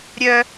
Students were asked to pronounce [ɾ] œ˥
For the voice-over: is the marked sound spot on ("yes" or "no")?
no